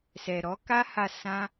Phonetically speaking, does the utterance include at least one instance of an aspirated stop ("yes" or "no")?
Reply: no